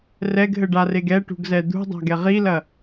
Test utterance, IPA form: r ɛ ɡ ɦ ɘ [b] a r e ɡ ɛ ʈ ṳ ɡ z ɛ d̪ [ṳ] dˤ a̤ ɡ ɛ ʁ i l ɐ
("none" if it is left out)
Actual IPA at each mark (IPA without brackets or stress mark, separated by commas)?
ɖ, ṳ